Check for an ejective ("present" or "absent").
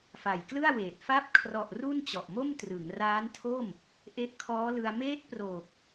absent